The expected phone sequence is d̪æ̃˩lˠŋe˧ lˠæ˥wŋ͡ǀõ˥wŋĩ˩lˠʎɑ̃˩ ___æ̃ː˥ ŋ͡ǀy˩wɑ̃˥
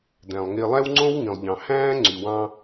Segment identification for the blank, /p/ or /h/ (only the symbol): h